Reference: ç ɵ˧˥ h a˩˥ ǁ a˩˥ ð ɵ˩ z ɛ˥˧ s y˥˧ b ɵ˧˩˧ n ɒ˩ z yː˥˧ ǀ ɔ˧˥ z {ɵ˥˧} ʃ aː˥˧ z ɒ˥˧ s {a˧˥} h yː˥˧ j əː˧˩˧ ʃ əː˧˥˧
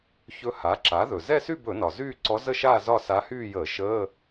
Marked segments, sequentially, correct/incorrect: incorrect, correct

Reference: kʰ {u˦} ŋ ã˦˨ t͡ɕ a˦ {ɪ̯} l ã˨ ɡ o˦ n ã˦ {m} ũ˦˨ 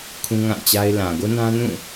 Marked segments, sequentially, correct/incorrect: incorrect, correct, incorrect

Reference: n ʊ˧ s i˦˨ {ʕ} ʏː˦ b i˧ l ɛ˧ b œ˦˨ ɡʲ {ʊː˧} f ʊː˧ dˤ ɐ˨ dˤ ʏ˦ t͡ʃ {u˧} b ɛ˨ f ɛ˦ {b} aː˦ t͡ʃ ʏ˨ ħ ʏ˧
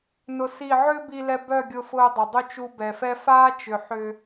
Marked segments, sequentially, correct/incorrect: correct, incorrect, correct, incorrect

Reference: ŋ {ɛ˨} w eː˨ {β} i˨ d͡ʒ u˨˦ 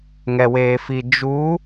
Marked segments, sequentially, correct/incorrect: correct, incorrect

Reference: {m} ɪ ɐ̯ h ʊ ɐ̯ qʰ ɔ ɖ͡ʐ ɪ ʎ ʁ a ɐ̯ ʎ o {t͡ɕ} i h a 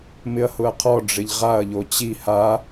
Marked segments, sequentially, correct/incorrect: correct, correct

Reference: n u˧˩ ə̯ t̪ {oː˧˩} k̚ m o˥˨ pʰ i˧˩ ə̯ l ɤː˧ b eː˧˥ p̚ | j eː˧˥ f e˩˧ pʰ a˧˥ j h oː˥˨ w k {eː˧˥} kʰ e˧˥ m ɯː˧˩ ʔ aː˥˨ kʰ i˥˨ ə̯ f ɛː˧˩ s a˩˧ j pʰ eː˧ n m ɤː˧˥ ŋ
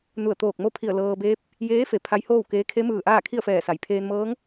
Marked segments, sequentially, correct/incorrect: correct, correct

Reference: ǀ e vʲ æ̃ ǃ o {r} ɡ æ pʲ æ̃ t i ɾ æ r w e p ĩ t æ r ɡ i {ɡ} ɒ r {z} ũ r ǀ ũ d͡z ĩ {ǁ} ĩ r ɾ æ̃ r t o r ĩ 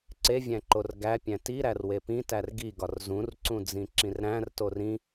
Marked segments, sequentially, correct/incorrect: correct, correct, correct, correct

